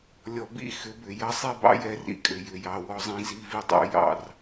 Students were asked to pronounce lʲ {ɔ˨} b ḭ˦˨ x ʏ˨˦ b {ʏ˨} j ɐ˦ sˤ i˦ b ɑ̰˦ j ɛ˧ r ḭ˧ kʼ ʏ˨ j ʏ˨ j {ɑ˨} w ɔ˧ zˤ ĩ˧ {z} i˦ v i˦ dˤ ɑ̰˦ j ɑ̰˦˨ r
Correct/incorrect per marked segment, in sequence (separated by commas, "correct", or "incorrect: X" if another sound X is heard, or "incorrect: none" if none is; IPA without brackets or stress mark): correct, correct, correct, correct